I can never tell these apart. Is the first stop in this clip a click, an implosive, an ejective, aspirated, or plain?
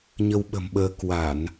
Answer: implosive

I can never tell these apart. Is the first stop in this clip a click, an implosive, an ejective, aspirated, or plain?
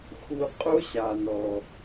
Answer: ejective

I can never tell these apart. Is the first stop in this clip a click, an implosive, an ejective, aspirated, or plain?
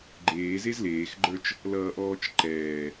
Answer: click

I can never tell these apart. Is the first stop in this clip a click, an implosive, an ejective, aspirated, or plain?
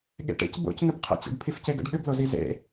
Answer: implosive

